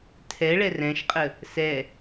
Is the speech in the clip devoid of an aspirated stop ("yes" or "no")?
no